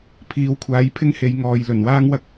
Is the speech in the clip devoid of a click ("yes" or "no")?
yes